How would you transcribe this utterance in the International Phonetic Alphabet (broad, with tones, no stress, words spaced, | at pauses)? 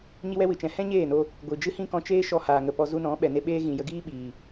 ɲi˦wɛ˦wɨ˨t͡ʃɛ̃˨ hɛ̃˦ɲeː˦˨no˧ | ɡʷɨ˨d͡ʒɨ˦hĩ˦ kɔ̃˧t͡ʃeː˦ ʃɔ˧haː˨ ŋə˨pɔ˧ zu˧nɔ̃˨˦ ɓɛ˨ne˧ ɓeː˦ ɣĩ˨jə˧ɡiː˦ ɓiː˨